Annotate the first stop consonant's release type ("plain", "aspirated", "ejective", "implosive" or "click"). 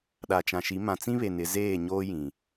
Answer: implosive